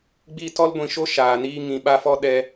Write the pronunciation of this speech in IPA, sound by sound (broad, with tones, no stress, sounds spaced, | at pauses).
ɡ͡b i˦ t ɔ˦ l ɡʷ ĩ˧ ʃ o˦ ʃ aː˧ n iː˦ ŋ ĩ˦ ɓ a˦ f ɔ˦ ɗ ɛ˦